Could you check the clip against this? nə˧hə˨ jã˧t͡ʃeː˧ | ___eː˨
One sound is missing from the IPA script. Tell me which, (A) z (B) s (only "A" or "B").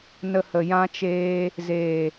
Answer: A